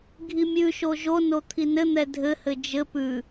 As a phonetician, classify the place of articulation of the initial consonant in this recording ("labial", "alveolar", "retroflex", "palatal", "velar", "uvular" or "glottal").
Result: velar